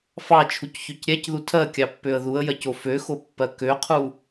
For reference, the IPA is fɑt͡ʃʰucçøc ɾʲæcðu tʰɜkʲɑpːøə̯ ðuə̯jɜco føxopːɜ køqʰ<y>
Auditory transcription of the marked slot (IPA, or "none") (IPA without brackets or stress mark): u